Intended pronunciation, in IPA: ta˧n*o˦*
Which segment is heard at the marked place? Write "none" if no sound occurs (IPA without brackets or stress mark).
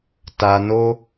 o˦